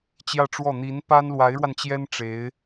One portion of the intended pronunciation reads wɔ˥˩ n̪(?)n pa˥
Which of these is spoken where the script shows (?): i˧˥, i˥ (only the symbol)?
i˧˥